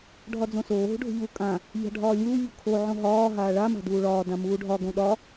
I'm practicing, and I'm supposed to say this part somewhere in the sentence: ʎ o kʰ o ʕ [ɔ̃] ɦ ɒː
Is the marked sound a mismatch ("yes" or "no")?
yes